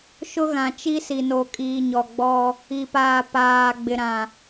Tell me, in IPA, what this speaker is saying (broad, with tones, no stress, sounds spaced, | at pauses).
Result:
ʃ ʊ˦ ɣ ã˨ t͡ʃ i˦ s i˨ n o˨ kʼ iː˨ ɲ ɔ˨ ɡ͡b ɔ˦ | i˨ p aː˨ p aː˨ ɡ͡b ɪ˨ ɾ ã˨